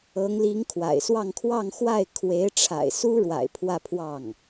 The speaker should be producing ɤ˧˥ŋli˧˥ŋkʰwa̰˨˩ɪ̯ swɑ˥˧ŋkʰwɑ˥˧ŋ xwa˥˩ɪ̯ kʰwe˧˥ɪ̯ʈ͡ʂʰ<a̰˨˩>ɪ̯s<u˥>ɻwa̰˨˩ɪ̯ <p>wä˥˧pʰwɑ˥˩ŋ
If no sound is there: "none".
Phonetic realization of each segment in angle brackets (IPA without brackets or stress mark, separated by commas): a̰˨˩, u˥, pʰ